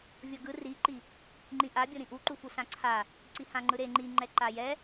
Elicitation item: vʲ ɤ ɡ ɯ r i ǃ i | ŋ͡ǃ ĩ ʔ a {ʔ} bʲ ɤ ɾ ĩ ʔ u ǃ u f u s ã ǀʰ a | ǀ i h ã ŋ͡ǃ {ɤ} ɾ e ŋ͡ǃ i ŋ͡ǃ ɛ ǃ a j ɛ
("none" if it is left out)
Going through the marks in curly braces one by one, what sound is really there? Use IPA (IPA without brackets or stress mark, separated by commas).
none, ɯ